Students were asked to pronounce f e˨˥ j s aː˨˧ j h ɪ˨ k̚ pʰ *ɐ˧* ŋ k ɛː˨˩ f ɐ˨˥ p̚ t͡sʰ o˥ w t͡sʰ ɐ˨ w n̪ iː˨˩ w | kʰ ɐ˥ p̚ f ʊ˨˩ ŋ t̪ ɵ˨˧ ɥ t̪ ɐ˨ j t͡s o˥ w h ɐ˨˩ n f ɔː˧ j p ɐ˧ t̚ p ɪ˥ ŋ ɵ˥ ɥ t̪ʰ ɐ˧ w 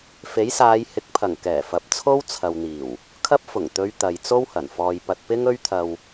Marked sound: incorrect: ɐ˨˩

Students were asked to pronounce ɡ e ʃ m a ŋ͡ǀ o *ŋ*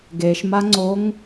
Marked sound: correct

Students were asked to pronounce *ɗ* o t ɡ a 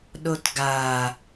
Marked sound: correct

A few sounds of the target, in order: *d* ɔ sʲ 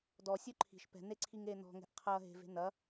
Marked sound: correct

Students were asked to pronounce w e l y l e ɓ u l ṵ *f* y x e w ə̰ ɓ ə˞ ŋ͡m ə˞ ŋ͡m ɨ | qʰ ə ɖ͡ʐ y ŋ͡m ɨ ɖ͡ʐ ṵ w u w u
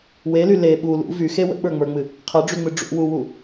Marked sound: incorrect: v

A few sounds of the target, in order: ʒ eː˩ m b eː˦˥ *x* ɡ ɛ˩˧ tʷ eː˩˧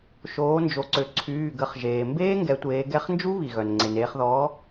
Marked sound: incorrect: ŋ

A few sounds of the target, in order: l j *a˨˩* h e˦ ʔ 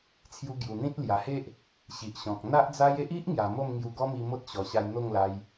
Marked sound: correct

